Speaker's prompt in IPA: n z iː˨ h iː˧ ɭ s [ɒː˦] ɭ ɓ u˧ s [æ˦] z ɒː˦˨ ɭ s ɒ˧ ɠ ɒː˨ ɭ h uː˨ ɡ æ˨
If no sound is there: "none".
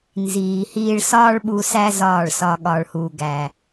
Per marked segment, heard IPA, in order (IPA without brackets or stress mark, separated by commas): ɒː˦, æ˦